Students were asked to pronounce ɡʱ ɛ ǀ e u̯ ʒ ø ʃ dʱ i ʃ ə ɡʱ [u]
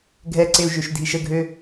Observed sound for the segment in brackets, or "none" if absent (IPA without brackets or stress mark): ø